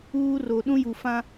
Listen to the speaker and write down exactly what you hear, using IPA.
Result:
uː˦ r o˨ ɗ ũ˦ j u˨ f ã˦

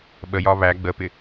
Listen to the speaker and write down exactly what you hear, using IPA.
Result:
ɓ ə j ɒ β æ ɡ͡b ə p ɪ

